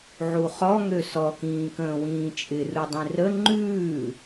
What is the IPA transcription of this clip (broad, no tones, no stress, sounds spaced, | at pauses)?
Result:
ʕ u χ ɔ ŋ ø s ɔ k ĩː k ə̃ː w ĩː t͡ʃʼ ɪ r u dˤ ĩ r ə ŋ͡ǃ ʉː